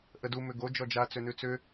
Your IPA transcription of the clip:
ʔədu mʏɡo d͡ʒɔd͡ʒa t͡sʏnʉt͡sʏ

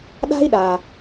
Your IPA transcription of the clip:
ɗa̤˥i̯ɗa˨

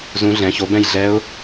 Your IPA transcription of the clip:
zũ˧˥ ɮɛ̃˩˥ço˩˥bɛ̃˥˩j ɮɛ˧˥ʊ̯

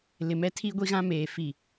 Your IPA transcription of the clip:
lɪ˨mɛ˦ tʰi˦ɡʷi˦ɣã˦meː˨ fi˦˨

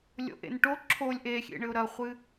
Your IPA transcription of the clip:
lʲo̰ʔḛnʈo ǁʰolʲ ʔexʲḛɳɘʊ̯ ɾɐχʷɨ

